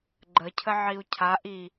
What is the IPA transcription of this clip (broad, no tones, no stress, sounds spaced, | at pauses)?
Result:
ɡ͡ǃ ə cʰ ə ʕ i u̯ cʰ a ʔ i